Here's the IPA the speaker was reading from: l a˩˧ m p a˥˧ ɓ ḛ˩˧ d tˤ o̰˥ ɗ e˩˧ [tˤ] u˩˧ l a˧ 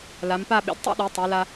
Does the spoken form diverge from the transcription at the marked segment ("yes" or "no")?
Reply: no